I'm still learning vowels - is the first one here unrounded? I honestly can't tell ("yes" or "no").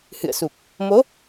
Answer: yes